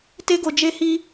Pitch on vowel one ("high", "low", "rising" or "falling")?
high